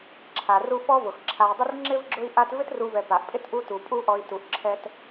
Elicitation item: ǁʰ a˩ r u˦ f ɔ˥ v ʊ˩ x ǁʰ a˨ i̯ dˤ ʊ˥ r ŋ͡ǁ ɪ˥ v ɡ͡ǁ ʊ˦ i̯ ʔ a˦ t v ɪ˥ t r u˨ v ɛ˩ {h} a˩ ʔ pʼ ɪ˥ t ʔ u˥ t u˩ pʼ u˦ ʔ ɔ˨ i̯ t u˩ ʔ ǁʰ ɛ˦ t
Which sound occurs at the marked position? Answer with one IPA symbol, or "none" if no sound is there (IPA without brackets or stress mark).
p